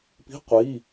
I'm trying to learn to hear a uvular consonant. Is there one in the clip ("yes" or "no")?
yes